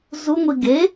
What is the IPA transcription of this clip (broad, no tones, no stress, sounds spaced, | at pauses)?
z u ŋʷ i ɡ e